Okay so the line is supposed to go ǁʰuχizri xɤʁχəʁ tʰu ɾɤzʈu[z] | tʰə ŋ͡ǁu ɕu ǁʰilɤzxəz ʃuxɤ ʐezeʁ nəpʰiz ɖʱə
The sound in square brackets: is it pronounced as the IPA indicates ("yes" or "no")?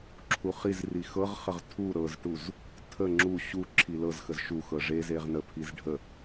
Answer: yes